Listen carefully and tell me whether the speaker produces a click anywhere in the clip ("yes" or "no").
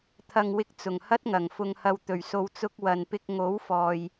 no